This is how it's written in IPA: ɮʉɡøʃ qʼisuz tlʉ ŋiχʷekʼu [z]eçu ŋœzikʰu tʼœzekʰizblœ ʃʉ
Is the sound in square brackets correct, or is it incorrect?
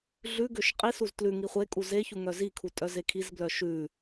correct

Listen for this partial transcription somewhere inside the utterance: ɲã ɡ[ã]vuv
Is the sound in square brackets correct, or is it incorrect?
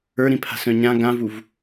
correct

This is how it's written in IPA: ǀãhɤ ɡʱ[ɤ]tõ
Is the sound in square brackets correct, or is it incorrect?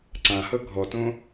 incorrect: ɔ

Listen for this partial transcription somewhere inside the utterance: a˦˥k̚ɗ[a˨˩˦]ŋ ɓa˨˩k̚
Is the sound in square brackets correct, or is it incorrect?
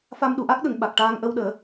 incorrect: ə˨˩˦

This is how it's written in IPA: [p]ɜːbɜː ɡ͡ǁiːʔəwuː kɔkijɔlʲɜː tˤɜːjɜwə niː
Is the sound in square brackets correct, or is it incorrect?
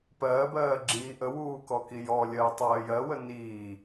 correct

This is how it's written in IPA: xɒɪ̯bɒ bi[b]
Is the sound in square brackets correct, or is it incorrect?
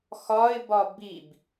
correct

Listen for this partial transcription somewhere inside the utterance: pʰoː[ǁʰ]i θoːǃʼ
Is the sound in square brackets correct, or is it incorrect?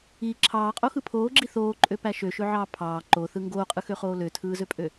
incorrect: ɡ͡ǁ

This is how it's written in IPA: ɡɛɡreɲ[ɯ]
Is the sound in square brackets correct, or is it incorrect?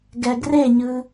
correct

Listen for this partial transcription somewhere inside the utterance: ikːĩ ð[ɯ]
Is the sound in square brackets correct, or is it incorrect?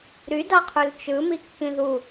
incorrect: u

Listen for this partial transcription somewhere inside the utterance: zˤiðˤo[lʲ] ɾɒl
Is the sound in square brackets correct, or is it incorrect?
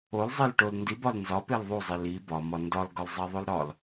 incorrect: l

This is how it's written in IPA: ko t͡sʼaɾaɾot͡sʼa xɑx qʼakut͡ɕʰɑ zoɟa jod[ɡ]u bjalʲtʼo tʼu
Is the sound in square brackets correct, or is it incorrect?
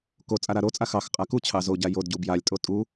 incorrect: ɟ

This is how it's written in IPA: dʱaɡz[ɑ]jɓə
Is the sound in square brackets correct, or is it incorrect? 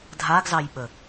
correct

